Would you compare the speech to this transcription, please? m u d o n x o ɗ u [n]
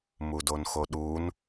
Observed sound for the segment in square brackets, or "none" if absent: n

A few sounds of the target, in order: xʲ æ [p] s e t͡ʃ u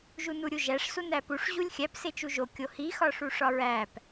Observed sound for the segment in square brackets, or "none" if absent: p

